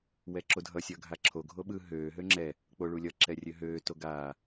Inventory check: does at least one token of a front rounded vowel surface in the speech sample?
yes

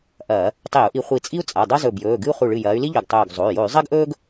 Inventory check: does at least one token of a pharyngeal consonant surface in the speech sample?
no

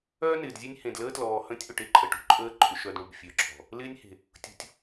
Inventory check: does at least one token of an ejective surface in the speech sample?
yes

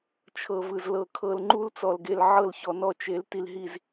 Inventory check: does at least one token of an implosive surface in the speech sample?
no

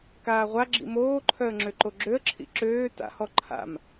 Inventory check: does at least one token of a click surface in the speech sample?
yes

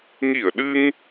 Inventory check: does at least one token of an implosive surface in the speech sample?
yes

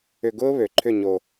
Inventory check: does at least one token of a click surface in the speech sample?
yes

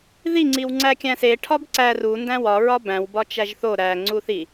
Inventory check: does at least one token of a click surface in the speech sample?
yes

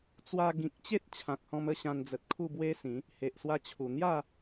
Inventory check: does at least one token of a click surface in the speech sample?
no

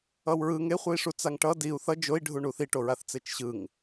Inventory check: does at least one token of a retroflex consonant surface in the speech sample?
yes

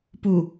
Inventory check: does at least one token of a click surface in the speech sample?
no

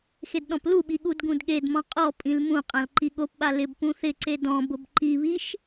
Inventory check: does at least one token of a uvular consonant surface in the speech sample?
yes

